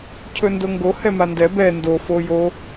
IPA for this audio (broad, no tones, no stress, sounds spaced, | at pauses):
cʰ ɵ n d o ŋ ɡ o h ɛ m a n d ɛ b ɛ n d o f o j o